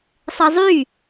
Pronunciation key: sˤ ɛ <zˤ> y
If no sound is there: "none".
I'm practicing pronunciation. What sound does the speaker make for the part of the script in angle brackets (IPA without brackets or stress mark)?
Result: zˤ